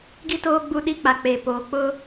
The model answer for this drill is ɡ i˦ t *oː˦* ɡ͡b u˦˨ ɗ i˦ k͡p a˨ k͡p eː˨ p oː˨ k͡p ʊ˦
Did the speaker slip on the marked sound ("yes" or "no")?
no